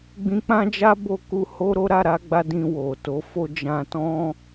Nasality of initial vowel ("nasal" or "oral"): nasal